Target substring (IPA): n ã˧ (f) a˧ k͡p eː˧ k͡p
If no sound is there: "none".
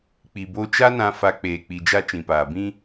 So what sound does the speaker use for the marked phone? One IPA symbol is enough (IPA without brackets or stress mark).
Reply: f